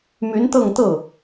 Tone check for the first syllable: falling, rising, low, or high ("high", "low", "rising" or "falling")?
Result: rising